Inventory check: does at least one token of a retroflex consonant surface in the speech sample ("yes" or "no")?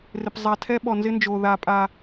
no